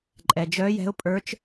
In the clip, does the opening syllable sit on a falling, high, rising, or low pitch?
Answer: low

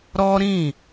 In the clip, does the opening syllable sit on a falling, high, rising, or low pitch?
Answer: high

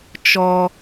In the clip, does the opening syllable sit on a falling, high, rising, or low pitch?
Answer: high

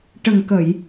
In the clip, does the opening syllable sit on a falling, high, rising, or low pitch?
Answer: low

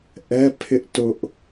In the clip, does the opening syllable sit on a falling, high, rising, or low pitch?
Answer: high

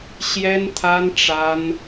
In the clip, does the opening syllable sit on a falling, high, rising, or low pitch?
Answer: high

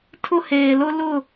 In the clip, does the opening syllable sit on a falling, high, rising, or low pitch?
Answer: high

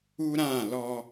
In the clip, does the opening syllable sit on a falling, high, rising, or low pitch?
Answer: high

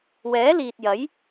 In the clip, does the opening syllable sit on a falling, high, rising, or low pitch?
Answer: rising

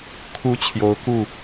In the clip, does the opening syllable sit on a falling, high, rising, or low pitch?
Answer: high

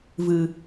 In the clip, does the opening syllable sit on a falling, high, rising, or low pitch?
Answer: low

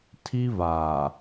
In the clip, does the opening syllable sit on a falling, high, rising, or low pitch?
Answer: high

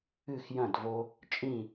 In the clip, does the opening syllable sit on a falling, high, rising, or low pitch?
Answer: falling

